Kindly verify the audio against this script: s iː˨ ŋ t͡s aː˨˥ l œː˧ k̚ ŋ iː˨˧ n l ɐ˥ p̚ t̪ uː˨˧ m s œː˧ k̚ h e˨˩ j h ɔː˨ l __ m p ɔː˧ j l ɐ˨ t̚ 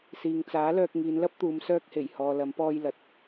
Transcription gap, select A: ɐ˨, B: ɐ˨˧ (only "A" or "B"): B